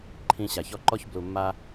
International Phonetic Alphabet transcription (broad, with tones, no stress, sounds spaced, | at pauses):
ǃʰ ĩ˧ ɕ a˨ ç ɔ˧ ǃ ɔ˦ ç b l u˨ mː a˧